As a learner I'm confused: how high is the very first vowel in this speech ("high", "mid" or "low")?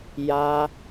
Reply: low